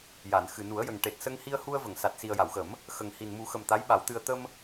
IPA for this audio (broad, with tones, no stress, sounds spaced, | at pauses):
j a˨˩˨ n x ɨ˨˩ n u˨˩˦ ə̯ j ə˨˩ ŋ ʈ e˨˩ t̚ s ə˧ ŋ h i˧ ə̯ h u˧ ə̯ v ə˨˩˨ ŋ s a˨˩ t̚ s i˨˩ ə̯ j a˨˩˨ w x ə˨˩˦ m | x ə˨˩ ŋ h i˨˩ n m u˨˩˦ x ə˨˩ m t̪ a˧˥ j ɓ a˨˩˦ w t̪ ɨ˧ ə̯ t̪ ə˧ m